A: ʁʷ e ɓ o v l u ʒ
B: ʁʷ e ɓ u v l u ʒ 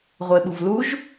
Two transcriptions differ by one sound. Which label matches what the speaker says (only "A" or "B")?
B